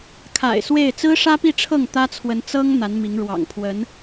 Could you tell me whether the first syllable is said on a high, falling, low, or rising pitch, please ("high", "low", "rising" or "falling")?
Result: low